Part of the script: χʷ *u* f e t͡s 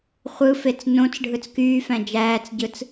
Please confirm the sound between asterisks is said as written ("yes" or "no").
no